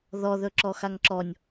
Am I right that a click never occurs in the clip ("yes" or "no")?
no